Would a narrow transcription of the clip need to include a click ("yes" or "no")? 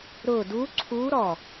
yes